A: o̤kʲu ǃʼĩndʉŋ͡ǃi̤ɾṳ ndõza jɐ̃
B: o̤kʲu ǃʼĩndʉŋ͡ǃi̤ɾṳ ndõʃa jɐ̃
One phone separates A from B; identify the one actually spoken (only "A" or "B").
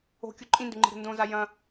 A